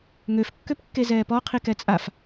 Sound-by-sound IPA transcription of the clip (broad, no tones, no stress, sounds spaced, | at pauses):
ŋ ø f kː ø p kː e z ɛː p ɔ qʰ i k ɛ t͡sʼ a f